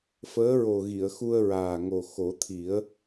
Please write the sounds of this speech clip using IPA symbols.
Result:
f əː˧˥ ɹ o˨˩ ɣ i˨˩˨ ə̯ x u˧ ə̯ ɹ aː˨˩ ŋ o˨˩ x o˨˩˦ t̪ʰ i˨˩˦ ə̯

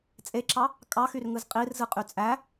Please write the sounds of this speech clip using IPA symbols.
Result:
t͡sʼ e ǁ ɑ | kʼ ɑ x y r ŋ ɯ z qʼ i r z ɯ qʼ y t͡sʼ æ

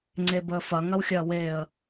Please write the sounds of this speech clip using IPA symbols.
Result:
ŋ͡ǀ e b əː f ɐ ŋ ɐ w xʲ ɐː w eː ə̯

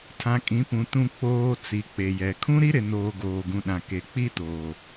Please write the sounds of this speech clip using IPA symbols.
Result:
tʰ ã˨ kʼ ĩ˨˦ p ũ˨ t ũ˨ k͡p oː˨ t͡s i˨ k͡p e˨ j ɛ˨ kʰ ũ˦ ɾ i˦ ɾ ɪ˨ n oː˨ ɡ oː˨ ɡ ũ˨ ɗ ã˨ k e˨ k͡p i˦ t oː˨

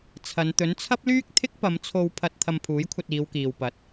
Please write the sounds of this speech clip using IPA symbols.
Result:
t͡sʰ ɐ˨˧ n t̪ ɵ˨˥ n t͡sʰ ɐ˥ p̚ l yː˥ k̚ t̪ʰ ɪ˥ k̚ p ɐ˨˧ m t͡sʰ o˧ w pʰ ɐ˧ t̚ t̪ʰ ɐ˧ m pʰ uː˨˥ j kʷʰ ɐ˧ t̚ iː˨˧ w k iː˨ w p ɐ˨˥ t̚

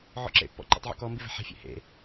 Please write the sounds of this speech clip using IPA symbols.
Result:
ʕ ɔ̰ ǁ ḛ pː ɔ̰ ǃ ɛ̰ tˤ ʕ ṵ k ɔ m b i v ɛ̤ ħ ɛ̤ fʲ ḛ h ḛ

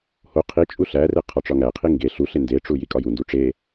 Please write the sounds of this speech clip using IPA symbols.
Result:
h o qʰ i t͡ʃʼ u ɬ æ r e qʰ ɒ ʈ͡ʂ ɒ ŋ æ qʰ i ŋ ɡ e ɬ u ɬ e n d e ʈ͡ʂ u j i kʼ ɒ j u n d u ʈ͡ʂ e

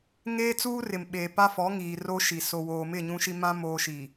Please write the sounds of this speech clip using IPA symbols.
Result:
ŋ eː˦ t͡s uː˦ r ɪ˨ m ɓ eː˨ p a˦ f ɔ˨˦ ŋ iː˨ r o˦ ʃ i˨ s o˨ w oː˨ m ɪ˦˨ ɲ ũ˦ ʃ i˦ m ã˦ m oː˦ ʃ i˨

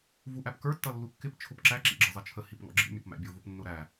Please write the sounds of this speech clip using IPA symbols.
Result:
v u ʔ æ p k ə˞ tː ʌ lː u kː ɪ p t͡ʃʰ ʊ p ǁ æ ǁ ḭ ɡ͡ǁ ʌ zˤ ə t͡ʃʰ ə h i p ŋ ɔ̰ ɡ͡ǁ ḭ mʲ ɔ p m æ̰ bʲ ʊ v ʊ p nː ʊ ɾ æ

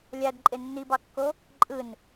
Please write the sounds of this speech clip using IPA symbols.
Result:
lʲ æ d ǃʼ e nː i b ɑ kː o | ǃʼ ɯ n

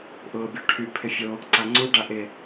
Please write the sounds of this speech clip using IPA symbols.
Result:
ʔ ʊː bʲ o ʈʰ y pʰ ɪ fʲ o | ǀ a ŋ͡ǀ u ɖ a ʔ ɪ

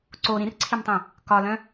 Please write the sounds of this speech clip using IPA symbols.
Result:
ǀ o ɾ ĩ r ǀʰ i m tˤ ĩ | k ɒ l œ̃

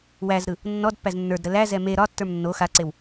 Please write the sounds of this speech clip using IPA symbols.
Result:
w æ z ɾ ɯ | nː ɔ d pː æ z nː ə˞ d ɾ ə l æ z ɛ m e ɾ ɒ tː ə˞ m nː o x a ǀ e w

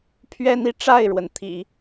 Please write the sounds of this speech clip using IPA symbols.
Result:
pʰ ɥ ɛ˥ n i˥˧ ʈ͡ʂ a˥˩ ɪ̯ ɻ w ə˩ n t̪ʰ ḭ˨˩˦

